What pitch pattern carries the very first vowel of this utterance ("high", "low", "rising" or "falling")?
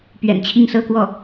low